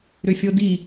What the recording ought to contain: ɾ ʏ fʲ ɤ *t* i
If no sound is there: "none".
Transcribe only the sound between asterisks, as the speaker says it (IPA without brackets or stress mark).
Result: d